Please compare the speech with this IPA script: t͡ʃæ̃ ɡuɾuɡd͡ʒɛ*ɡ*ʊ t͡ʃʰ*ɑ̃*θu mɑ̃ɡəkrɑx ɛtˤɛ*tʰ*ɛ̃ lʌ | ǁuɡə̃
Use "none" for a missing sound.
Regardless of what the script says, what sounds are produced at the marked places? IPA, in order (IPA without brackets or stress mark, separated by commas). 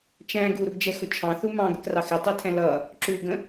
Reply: x, ɑ̃, tʰ